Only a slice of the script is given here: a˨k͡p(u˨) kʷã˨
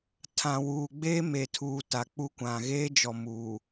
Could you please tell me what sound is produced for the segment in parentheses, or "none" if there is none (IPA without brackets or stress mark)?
u˦